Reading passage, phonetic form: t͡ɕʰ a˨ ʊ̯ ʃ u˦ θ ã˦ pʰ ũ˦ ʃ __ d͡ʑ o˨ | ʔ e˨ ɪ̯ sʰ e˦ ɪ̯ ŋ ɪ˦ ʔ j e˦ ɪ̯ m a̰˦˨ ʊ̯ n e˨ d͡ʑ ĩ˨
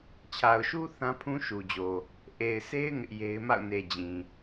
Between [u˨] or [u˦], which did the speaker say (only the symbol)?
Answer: u˨